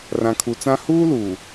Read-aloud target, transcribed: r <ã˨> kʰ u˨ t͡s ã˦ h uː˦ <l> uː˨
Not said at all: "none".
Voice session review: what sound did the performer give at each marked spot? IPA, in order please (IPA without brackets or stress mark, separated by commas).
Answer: ã˨, l